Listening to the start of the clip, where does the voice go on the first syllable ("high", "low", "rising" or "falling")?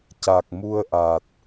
low